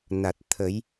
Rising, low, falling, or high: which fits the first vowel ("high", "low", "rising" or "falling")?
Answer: low